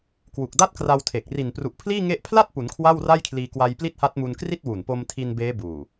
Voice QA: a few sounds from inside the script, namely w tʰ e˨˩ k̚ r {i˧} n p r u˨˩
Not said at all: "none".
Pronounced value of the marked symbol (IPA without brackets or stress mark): i˨˩